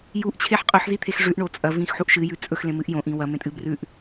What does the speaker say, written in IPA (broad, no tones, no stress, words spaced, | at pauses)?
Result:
juʔt͡ɕʰeħ qʼɵħzit̪ʰex ʐʉʔɳo t͡sʼɐvĩxħuʔ ʃɨjʉ t͡sʼɵxlẽmɨʔ jõʔĩ wɐmẽtʼɨ brʉʔ